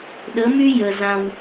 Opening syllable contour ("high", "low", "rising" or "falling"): rising